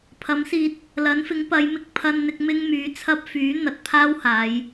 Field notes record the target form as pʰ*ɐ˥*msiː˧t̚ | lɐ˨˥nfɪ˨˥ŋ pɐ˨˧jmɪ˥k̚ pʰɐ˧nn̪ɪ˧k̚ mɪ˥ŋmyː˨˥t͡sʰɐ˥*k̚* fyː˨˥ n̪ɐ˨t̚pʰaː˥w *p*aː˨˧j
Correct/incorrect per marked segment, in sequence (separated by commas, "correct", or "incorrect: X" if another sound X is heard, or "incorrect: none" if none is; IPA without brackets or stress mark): incorrect: ɐ˨˥, incorrect: p̚, incorrect: h